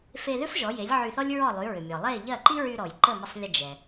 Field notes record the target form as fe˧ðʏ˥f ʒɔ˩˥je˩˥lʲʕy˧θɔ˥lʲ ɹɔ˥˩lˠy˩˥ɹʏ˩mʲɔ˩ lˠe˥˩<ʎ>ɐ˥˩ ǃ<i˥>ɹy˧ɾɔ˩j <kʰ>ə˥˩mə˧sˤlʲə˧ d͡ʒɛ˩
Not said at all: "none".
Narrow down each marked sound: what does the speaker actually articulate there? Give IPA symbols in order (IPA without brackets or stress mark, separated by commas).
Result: ʎ, i˥, ǃ